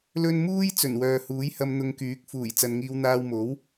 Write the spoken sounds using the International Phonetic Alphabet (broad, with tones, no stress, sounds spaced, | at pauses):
l ɵ˥ n m uː˥ j t͡s ɵ˨˩ n w œː˨ h uː˨˥ j h ɐ˧ m n̪ ʊ˧ ŋ k yː˨˥ k̚ f uː˨˩ j t͡s ɐ˨ n ŋ iː˧ w n̪ aː˧ w m o˨˥ w